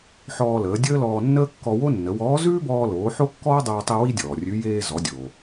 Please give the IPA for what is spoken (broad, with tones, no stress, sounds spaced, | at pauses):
ħ ɔː˧ l əː˩˧ dʲ əː˥ l ɔː˧ nː əː˥ kː ɔ˧ w o˥ nː ə˩˧ w ɔː˧˥ z ʉː˥ b ɔː˧ l oː˩˧ ħ o˥ kː ɔː˥ dˤ oː˧ tˤ i˧ w i˥ dʲ ɔː˩ rʲ ʉ˧˥ j eː˧ z ɔ˩˧ dʲ oː˩